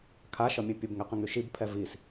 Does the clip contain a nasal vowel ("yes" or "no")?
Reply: yes